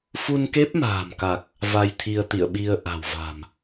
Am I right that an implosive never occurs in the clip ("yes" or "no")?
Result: no